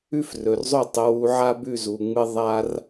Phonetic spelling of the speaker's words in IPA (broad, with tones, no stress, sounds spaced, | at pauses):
ʉ˥ f r ɵ˩ r zˤ o˥˩ tˤ ɵ˧ w u˧ ʕ a˥ b ʉ˥˩ z u˩ ŋ͡m ɨ˧ ðˤ a˧ r